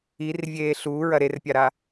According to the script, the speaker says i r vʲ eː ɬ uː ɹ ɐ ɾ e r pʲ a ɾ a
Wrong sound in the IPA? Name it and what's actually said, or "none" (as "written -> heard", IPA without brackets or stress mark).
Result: none